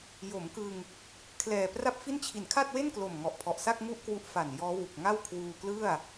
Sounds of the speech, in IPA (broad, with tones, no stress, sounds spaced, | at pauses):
j o˩˦ m k ɯ˧ ŋ | kʰ l ɛː˨˩ p r a˥˩ p̚ f i˥˩ n t͡ɕʰ i˩˦ n kʰ a˥˩ t̚ w e˥˩ n k l o˨˩ m ŋ ɔ˨˩ ʔ pʰ ɔ˨˩ ʔ s a˥˩ k̚ ŋ u˥˩ ʔ k w u˦˥ ʔ f a˨˩ n j ɔː˦˥ w u˨˩ k̚ ŋ a˥˩ w kʰ w uː˧ k l ɯ˥˩ a̯